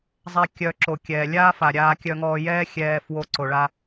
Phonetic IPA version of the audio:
zˤɛ˦ kʲœ˧ ǁo˨kʲɛː˨lʲaː˦fa˨ ɾʲaː˧kʲœ˧ŋɔː˧jɛː˦ xʲɛː˧fwo˧ ǀo˨ɭa˧

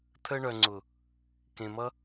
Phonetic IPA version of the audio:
t̪ʰə˧ɳœ˨ŋ͡ǀʊ˨ | kẽ˨mʌ˦

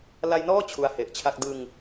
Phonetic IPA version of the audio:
la˧jnɔː˥˩ t͡ɕʰu˦˥a̯he˨˩ʔt͡ɕʰa˥˩k̚ dɯ˧ŋ

